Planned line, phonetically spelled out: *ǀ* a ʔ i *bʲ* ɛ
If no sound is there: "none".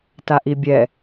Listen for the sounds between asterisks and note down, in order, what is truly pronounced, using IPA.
t, bʲ

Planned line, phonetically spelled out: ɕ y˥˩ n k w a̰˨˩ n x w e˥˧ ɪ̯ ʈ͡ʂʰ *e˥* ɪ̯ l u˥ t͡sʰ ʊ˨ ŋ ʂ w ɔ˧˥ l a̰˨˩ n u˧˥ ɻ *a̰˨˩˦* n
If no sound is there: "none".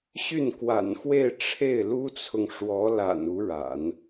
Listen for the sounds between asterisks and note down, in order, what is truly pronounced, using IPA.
e˥˩, a̰˨˩˦

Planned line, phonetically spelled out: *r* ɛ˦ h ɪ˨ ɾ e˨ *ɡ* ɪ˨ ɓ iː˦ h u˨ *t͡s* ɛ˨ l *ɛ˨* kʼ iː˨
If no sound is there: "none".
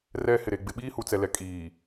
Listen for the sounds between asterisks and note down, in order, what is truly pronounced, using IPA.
r, ɡ͡b, t͡s, ɛ˨

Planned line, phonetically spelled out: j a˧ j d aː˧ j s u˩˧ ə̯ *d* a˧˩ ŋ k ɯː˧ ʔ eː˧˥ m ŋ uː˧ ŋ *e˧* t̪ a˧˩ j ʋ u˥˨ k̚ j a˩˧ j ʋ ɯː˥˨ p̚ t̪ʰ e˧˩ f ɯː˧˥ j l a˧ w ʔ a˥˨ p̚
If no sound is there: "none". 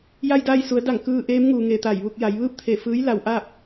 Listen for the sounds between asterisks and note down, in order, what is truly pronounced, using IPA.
d, e˧

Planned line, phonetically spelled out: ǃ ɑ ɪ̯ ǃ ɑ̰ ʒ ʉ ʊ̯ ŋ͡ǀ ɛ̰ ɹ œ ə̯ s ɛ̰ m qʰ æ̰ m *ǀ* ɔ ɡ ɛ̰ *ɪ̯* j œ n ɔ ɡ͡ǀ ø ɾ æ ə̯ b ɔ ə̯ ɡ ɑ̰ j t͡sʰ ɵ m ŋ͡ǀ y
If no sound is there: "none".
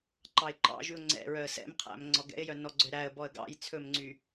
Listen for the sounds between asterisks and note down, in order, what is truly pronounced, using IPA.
ŋ͡ǀ, ɪ̯

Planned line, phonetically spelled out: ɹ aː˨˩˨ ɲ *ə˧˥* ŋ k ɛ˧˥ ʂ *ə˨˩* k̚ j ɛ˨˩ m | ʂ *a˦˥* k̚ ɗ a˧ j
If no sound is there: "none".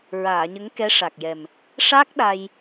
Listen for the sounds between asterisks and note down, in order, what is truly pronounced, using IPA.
ə˧˥, a˨˩, a˦˥

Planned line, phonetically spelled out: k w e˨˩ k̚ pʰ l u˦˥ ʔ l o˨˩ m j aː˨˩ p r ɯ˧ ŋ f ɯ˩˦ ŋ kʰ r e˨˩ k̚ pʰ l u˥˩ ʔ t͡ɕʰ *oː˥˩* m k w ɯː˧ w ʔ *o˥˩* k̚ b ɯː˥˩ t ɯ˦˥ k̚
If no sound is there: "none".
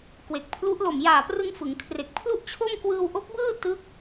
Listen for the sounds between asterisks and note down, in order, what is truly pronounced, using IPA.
o˥˩, o˦˥

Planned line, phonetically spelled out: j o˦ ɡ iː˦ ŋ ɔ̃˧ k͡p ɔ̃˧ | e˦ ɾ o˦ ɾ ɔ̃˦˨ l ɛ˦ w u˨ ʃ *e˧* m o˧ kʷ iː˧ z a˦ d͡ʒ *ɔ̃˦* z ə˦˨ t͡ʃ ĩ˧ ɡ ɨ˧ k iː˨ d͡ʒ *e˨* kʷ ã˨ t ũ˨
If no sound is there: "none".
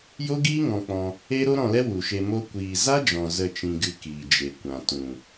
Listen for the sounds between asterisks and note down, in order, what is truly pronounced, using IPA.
e˧, ɔ̃˨, e˨

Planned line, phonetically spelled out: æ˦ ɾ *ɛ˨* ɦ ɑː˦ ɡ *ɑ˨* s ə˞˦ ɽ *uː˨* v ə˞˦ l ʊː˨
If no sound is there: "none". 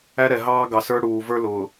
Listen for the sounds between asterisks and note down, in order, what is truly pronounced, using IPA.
ɛ˨, ɑ˨, uː˨

